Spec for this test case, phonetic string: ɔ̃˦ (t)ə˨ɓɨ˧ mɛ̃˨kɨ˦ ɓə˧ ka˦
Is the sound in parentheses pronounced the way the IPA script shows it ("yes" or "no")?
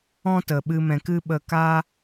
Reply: yes